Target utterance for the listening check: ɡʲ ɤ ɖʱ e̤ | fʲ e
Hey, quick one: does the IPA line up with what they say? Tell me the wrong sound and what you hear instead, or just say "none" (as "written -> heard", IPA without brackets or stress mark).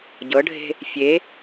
ɡʲ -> ɟ